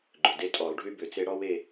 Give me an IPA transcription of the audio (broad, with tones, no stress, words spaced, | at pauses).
ɡ͡ǃʏ˨˩de˥tʼɔ˧˩˧lˠɖʱy˥ bʏ˨˩t͡se˥ ɽɔ˥we˥˨